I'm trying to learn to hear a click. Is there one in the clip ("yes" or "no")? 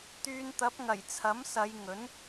no